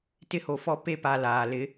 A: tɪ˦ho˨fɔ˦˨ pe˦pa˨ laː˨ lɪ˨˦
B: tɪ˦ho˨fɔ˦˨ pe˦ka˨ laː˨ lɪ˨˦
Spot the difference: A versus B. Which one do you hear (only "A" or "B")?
A